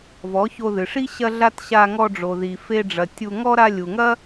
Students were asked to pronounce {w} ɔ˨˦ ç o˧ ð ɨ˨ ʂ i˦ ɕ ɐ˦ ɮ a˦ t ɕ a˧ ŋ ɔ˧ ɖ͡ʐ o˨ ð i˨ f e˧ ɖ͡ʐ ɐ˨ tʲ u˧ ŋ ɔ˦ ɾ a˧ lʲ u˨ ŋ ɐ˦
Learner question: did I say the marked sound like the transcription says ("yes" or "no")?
no